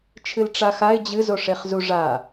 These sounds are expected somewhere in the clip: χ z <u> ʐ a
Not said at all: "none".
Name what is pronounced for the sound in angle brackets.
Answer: u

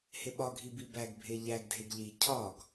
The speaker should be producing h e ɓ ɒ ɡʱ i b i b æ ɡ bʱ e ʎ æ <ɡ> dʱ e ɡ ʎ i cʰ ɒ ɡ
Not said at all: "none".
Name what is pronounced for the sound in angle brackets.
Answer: ɡ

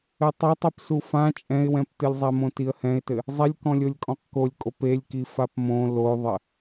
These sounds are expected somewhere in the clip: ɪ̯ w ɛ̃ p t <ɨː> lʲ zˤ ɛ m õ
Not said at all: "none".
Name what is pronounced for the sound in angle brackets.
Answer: ɨ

